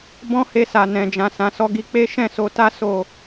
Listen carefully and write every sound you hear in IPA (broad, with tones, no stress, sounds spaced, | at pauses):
b ɔ̃˦ h e˧ s a˨ n ɛ̃˨ d͡ʒ ã˨ s ã˨ s ɔ˧ ɡ i˧ k͡p e˦ ʃ ɛ̃˦˨ s o˧ t a˦ s o˦˨